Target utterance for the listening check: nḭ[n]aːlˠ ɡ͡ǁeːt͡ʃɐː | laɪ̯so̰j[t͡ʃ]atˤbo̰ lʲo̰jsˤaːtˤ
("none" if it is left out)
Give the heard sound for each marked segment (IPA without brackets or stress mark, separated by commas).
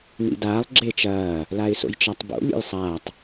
d, t͡ʃ